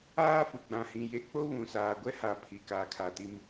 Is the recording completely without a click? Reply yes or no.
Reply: yes